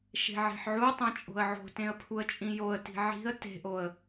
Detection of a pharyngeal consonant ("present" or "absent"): present